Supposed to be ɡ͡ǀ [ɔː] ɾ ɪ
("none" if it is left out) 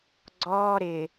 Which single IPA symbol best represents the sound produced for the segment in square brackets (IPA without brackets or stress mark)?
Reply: ɔː